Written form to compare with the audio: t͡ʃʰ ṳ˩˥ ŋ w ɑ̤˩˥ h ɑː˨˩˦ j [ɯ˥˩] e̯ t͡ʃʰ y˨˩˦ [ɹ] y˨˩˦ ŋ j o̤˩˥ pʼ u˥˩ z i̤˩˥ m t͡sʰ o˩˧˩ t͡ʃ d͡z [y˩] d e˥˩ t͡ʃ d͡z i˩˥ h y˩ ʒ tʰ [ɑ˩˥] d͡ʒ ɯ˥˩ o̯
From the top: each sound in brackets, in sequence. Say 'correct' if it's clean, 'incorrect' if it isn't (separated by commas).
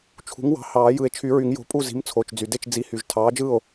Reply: incorrect, correct, correct, incorrect